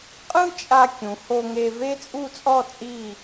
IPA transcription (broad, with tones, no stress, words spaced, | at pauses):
qʼɯ˥t͡ʃʼa˧ kʲũ˩˧ ho˧ŋe˧ ve˥t͡sʼu˥˧t͡sʼɔ˥˧ t͡sʼi˥˧